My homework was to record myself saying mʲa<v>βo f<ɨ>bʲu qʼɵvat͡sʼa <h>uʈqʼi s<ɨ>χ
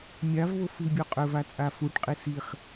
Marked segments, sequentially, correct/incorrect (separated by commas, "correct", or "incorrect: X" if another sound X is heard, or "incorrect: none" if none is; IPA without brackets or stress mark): correct, correct, incorrect: f, incorrect: i